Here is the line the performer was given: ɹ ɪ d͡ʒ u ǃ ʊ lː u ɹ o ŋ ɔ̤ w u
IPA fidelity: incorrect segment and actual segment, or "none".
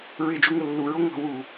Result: ǃ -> ŋ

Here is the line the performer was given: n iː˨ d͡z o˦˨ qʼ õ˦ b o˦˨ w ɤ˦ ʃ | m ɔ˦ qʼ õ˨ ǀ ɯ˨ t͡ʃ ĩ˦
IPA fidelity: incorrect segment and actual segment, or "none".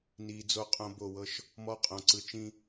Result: none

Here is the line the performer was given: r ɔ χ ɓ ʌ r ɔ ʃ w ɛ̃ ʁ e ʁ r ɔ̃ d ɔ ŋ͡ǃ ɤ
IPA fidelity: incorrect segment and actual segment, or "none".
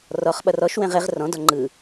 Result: ɤ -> ɯ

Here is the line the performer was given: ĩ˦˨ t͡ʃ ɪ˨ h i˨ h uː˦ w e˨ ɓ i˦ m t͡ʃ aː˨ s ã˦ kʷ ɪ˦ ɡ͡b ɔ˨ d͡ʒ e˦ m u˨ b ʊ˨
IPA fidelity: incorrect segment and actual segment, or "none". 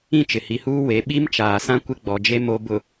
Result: u˨ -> o˨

